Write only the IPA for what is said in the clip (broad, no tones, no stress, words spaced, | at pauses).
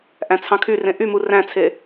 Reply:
ʔæ̃t͡sʰɑ̃kʰyrẽ ʔymu ræ̃t͡sʰe